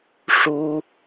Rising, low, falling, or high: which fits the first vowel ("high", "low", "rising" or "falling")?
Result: high